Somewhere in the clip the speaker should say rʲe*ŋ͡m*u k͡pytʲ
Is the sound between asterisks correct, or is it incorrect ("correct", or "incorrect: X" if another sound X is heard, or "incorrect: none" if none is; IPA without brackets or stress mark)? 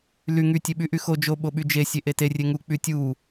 incorrect: ŋ